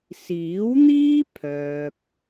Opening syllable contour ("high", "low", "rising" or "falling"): rising